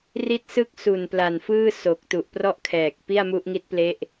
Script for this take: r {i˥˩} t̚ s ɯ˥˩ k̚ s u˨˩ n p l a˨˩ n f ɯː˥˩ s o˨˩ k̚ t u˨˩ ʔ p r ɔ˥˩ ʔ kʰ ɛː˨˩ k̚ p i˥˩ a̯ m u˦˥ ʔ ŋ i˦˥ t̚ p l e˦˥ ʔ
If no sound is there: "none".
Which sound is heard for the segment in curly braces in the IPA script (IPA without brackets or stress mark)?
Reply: i˥˩